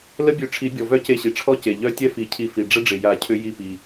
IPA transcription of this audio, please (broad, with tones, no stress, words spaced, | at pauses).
lə˦˥bʲø˧˩ʈ͡ʂʰi˨˩˦ bʲɔ˩ vœ˦˥ce˧˩ɕi˩ʈ͡ʂʰɔ˦˥ ce˩ʎœ˦˥ tʲɛ˥˧fi˨˩˦cʰi˧˩ fi˩ɖ͡ʐə˦˥ɖ͡ʐɪ˩ ja˨˩˦ cʰʏ˦˥ ji˧˩pi˩